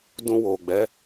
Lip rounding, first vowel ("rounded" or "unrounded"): rounded